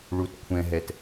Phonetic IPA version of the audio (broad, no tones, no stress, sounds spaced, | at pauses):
ɭ u t kʷʰ ɛ̃ ɦ ɛ t